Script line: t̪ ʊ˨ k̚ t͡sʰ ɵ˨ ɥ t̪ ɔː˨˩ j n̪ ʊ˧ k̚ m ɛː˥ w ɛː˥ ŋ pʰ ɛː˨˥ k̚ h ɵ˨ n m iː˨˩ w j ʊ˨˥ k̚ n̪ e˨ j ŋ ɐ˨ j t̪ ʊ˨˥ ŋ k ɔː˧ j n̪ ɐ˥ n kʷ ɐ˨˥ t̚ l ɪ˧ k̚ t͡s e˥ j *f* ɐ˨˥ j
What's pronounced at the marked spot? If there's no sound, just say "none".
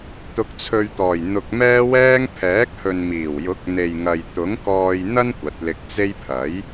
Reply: pʰ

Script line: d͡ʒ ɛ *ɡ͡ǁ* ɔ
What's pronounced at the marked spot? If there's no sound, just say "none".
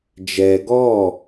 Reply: ɡ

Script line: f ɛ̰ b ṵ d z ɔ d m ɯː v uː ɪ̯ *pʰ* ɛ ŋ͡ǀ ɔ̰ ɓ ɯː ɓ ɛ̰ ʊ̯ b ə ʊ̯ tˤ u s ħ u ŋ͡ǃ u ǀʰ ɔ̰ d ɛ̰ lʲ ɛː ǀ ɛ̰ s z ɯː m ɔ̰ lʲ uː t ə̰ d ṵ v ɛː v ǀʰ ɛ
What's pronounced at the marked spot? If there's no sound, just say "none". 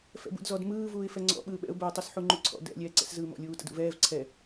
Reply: f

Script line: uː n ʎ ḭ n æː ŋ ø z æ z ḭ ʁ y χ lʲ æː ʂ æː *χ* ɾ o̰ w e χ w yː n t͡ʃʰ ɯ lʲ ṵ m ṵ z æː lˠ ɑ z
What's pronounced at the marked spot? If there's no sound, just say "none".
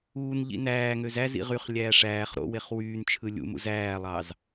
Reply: χ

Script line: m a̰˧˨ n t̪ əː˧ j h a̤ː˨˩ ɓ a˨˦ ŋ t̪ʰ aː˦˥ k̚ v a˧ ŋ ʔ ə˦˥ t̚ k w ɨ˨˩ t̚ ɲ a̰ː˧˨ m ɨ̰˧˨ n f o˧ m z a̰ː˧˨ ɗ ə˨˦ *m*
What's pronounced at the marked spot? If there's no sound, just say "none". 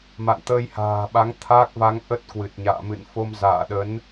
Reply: n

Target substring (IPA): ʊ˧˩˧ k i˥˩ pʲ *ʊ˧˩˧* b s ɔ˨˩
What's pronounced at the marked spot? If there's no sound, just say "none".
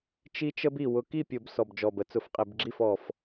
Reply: ʊ˧˩˧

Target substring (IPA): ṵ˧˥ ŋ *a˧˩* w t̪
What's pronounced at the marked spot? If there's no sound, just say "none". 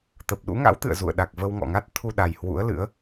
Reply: a̰˧˥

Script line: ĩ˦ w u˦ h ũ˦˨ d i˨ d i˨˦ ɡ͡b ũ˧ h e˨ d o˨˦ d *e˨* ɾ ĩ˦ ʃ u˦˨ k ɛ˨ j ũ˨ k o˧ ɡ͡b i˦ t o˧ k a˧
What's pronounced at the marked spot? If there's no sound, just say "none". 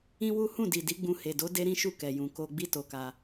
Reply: e˦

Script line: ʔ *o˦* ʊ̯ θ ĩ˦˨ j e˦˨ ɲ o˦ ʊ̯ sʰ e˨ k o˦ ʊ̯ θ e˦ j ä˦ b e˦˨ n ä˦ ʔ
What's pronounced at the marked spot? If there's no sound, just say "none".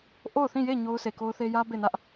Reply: o˦˨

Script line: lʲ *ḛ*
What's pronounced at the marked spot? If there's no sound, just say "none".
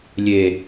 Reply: e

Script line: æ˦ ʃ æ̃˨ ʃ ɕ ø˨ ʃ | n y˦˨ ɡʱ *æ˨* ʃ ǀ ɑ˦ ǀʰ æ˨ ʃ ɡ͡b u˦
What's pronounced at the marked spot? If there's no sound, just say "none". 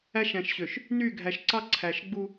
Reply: æ˨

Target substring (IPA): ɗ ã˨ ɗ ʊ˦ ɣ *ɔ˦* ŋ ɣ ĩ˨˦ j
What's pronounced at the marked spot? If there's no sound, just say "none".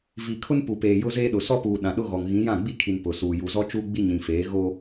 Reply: ɔ˨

